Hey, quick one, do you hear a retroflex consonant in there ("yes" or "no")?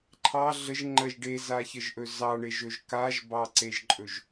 yes